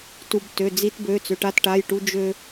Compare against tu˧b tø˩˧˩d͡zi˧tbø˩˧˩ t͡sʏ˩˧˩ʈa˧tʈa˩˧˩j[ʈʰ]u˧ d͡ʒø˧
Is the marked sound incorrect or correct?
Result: incorrect